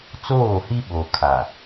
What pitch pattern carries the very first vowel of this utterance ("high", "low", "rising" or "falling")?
falling